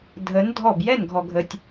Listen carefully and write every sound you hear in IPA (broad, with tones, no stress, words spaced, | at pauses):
dʱə˨˥n dʱɔ˥˩b jɛ˥˩nɡʱɔ˨ɡʱə˨tʲ